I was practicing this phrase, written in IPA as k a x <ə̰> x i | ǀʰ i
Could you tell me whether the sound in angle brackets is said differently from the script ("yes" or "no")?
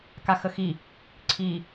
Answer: yes